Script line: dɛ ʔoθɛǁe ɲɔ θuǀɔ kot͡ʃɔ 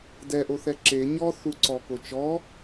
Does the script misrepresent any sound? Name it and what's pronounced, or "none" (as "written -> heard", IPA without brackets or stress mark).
none